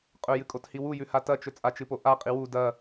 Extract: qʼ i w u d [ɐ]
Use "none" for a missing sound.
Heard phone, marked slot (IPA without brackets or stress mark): ɐ